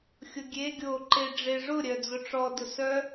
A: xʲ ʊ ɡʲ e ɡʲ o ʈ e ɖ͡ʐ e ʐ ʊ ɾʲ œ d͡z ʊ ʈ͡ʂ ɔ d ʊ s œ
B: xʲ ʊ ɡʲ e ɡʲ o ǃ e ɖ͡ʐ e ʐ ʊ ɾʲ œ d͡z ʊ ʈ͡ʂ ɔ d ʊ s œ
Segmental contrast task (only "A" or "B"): B